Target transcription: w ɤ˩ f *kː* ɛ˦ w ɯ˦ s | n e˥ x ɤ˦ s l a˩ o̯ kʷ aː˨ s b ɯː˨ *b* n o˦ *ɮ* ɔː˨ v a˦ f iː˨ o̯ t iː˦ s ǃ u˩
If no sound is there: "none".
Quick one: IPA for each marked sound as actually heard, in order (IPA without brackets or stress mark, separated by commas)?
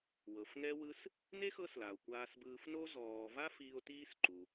ŋ, f, z